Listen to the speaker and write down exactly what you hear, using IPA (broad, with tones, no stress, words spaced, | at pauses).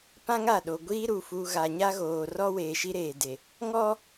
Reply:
pã˦ŋa˦˨ɗo˨ ɡʷiː˦ɾu˨ fu˨ ɣa˨ɲa˦ɣoː˨ rɔ˦weː˨ ʃi˦ɾeː˨de˨ | ŋɔ˦